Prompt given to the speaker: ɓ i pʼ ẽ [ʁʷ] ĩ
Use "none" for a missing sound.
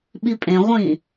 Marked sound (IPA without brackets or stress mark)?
ʁʷ